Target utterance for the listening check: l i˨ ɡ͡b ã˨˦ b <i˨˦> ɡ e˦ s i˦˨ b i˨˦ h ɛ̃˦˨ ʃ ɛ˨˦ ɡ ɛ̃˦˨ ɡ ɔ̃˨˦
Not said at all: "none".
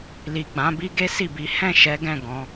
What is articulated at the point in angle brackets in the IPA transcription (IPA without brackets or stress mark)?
i˦